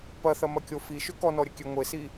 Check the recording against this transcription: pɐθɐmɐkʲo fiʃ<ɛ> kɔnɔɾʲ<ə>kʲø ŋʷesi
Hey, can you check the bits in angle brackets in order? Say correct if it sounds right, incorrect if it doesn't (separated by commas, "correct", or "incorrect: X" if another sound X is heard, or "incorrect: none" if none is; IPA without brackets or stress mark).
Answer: incorrect: ʏ, correct